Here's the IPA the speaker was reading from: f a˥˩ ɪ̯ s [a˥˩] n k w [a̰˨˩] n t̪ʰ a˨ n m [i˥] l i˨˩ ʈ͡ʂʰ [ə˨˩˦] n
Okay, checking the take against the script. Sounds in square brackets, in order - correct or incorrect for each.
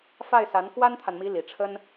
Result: incorrect, incorrect, incorrect, incorrect

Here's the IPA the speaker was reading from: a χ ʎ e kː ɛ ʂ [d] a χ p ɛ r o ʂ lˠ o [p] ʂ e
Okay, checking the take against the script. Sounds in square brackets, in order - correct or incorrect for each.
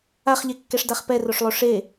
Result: correct, incorrect

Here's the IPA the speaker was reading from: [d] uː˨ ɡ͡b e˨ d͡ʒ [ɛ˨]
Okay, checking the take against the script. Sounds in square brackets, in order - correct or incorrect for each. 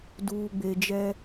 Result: correct, incorrect

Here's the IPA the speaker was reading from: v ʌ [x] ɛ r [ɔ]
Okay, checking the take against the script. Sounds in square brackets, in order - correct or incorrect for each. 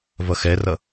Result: correct, incorrect

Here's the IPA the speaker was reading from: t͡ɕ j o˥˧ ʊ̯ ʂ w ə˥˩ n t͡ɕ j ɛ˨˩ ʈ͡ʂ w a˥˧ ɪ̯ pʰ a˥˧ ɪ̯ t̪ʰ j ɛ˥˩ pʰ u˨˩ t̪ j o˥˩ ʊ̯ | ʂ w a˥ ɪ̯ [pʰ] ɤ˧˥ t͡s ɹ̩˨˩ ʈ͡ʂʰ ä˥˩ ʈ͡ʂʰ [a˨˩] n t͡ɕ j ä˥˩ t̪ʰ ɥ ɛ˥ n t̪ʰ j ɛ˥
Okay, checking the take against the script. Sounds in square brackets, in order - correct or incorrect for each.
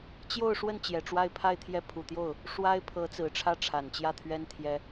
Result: correct, correct

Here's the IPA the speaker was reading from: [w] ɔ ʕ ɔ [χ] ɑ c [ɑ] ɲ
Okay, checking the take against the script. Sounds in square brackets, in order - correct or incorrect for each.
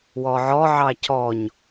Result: correct, incorrect, incorrect

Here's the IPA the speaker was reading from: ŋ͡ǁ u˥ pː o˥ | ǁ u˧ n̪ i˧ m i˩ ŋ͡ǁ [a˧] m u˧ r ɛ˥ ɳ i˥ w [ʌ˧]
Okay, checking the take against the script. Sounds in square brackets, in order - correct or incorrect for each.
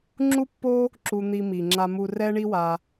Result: correct, incorrect

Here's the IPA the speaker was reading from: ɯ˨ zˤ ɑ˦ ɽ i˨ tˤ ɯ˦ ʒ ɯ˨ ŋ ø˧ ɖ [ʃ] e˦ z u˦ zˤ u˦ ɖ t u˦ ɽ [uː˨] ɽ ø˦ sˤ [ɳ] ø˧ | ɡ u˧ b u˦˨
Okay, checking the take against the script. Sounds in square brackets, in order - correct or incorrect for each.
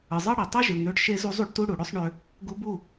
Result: correct, incorrect, correct

